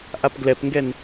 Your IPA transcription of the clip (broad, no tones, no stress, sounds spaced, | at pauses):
ʔ a p ɡ l ɛ p ŋ ɡ ɛ n